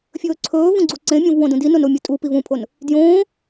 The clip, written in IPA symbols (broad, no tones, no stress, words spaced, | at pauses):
fʲɵːǀʰɵːvũ ɡ͡ǀuǀẽmʲõv wõdũdinon omʲutʼupiv ũpʰon | djõː